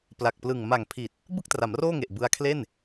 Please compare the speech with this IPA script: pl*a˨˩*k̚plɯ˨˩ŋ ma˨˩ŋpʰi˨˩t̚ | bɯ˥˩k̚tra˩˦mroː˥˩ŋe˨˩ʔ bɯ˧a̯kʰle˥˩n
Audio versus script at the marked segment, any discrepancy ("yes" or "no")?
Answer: no